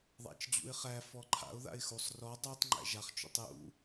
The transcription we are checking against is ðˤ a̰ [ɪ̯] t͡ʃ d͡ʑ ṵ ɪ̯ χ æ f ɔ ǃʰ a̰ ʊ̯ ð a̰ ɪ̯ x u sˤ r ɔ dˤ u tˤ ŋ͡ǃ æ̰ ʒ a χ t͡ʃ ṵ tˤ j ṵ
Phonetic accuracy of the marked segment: incorrect: none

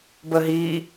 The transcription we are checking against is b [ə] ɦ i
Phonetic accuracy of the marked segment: correct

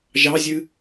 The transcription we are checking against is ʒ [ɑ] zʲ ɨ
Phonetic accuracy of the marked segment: correct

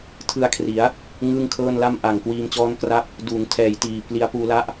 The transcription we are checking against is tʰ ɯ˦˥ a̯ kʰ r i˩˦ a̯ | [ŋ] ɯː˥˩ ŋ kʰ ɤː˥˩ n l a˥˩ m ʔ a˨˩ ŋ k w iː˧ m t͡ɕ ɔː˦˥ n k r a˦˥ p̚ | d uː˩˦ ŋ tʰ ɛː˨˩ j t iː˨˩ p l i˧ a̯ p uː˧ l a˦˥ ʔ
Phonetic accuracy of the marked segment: correct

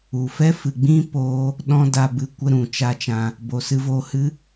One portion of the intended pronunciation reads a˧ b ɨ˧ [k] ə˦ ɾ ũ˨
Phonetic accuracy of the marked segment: incorrect: kʷ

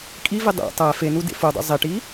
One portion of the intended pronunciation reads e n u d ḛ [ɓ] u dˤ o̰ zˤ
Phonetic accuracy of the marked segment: incorrect: f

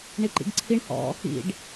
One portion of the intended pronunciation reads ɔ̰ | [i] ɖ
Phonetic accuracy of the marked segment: incorrect: ḭ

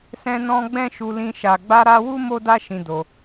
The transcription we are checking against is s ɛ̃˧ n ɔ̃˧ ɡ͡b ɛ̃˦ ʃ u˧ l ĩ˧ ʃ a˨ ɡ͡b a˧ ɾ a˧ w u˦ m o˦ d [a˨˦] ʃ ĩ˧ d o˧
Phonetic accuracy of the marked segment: incorrect: a˦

